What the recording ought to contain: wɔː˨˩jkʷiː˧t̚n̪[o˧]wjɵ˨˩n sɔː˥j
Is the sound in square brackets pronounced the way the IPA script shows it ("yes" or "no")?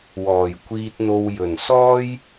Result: yes